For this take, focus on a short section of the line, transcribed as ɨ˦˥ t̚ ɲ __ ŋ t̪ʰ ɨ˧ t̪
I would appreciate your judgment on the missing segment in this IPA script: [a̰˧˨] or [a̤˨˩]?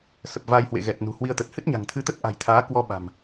a̤˨˩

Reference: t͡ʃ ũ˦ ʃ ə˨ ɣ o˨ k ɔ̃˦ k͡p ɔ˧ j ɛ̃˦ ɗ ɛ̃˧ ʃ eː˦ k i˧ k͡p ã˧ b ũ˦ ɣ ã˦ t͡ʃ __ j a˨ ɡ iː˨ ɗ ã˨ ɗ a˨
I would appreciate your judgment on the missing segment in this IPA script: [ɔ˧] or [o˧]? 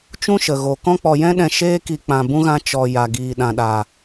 ɔ˧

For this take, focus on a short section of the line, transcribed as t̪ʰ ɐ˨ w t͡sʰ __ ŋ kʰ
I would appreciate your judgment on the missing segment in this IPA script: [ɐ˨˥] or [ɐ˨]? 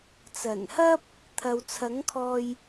ɐ˨˥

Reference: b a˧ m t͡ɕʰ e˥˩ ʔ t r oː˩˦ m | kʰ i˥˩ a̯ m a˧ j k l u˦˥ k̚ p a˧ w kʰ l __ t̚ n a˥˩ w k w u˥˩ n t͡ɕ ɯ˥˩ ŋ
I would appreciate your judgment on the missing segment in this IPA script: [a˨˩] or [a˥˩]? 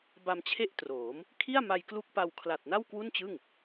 a˨˩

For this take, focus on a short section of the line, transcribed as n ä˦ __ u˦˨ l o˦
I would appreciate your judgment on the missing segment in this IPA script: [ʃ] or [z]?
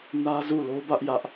z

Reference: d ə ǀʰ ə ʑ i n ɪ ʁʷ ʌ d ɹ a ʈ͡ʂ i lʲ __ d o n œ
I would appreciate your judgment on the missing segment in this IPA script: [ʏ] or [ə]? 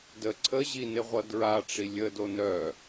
ə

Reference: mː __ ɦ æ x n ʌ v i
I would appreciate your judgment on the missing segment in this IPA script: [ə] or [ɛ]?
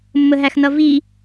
ə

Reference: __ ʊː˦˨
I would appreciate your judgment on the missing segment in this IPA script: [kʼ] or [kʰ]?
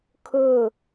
kʰ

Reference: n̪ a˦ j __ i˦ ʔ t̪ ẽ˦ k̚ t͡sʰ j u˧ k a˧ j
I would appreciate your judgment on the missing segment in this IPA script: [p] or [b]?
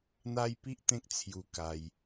p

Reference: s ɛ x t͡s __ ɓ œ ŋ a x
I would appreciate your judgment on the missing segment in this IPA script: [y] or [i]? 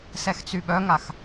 y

